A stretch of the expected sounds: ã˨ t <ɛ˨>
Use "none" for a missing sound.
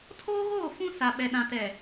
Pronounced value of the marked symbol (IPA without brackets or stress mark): ɛ˨